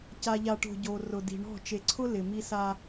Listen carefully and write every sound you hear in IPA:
ca˨ʎa˨ʈo̤˨ ɟo˨rʊ˨di̤˨ ɳɔ̤˦˨ t͡ʃe˨ǀʰʊ˦ lɪ˨ mi˦sa˦

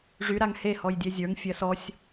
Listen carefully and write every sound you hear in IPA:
ʐyɾaŋ hehɔj dʲɛzʲə˞ŋfʲɜ sɔsʲ

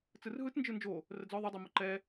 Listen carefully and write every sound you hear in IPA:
t͡sɯrɦɯt nd͡ʒɯnd͡ʒo | rəd͡zɔ ðˤɪdˤi mʊǃɛ

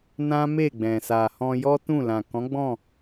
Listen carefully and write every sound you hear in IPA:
nã˦me˦˨ɡ͡bɛ̃˨ sa˨hɔ̃˧jɔ˦ tũ˦˨lã˨ kɔ̃˨˦ɡ͡bɔ̃˦˨

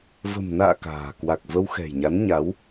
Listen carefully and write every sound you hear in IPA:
və̤˨˩mna̰ː˧˨ ka̤ː˨˩ kwa˨˩k̚və˧w xɛ̤˨˩jɲa˨˦n ɲa˨˦w

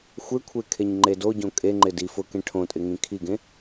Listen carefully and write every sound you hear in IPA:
xʷekʷʰe kʰeɲŋ͡ǃedoɟõ kʼeŋ͡ǃɪ di fʊkẽ ʈʰõtʼɪ ŋĩkʰiɡẽ

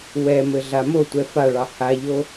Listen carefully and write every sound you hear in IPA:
wɛmɘ ɮamotʷɛ faɭɑ haʎo

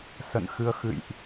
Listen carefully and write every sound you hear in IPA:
sə̰˧˨nxɨ˧ə̯ xɨ̰˧˨jʔ

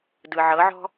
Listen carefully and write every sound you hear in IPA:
dɯ˨ʕɤ˨˦ʕɔ̤˦

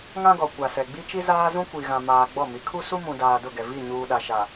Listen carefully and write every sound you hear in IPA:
ŋã˦ɡɔ˨ kʷa˨sɛ˨ ɡ͡bi˦t͡ʃi˦zaː˦zũ˦ kʷi˨ɣã˨ maː˨ɡ͡bɔ˦˨mi˨˦ kʰu˦su˦ mũ˨daː˨ dʊ˦˨ɡɛ˨ vi˦˨ ɲuː˨ɗa˨ʃa˨

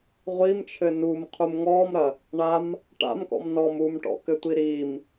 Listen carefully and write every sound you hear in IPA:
ʁʷimt͡ʃʰɘ numqʰum ŋɔmɾɐ | ɳam | ʈa̰mkɔ̰m nɔm umʈɔ̰kɘtʷi ɾim

